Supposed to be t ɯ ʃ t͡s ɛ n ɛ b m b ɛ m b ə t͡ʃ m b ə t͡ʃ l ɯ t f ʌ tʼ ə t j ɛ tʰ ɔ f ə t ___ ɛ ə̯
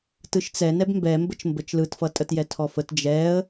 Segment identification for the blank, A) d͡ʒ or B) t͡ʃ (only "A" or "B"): A